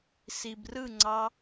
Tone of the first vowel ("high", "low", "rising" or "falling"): low